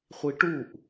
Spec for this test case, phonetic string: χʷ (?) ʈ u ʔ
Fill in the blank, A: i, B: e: A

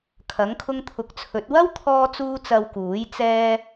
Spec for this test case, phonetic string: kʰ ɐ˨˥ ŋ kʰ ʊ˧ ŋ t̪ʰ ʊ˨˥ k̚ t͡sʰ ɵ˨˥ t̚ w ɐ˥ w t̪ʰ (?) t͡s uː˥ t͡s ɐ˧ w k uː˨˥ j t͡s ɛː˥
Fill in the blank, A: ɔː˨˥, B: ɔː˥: B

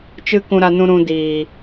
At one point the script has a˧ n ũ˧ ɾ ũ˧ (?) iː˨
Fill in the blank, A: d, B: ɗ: A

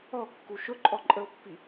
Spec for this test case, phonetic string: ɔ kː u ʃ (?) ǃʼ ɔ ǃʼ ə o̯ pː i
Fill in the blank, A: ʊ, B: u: A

